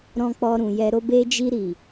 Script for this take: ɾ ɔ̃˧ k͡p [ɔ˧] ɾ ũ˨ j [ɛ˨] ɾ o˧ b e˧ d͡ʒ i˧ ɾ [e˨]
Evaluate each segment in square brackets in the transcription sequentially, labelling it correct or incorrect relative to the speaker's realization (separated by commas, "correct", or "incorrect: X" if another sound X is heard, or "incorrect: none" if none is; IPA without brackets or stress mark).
correct, correct, incorrect: i˨